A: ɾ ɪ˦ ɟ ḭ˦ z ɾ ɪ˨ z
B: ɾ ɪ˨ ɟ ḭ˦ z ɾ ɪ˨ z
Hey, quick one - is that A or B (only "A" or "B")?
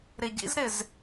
B